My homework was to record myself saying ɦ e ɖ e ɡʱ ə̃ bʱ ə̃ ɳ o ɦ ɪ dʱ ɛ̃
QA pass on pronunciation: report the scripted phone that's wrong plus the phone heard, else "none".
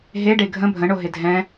none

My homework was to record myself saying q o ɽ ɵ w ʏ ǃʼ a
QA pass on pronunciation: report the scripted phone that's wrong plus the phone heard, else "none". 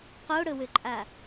none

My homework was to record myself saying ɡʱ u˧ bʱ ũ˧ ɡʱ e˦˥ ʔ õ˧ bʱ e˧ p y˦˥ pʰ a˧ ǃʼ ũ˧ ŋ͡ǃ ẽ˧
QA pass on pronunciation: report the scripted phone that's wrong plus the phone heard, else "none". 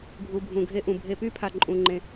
õ˧ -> ũ˧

